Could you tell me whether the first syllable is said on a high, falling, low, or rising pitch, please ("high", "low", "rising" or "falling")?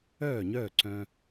falling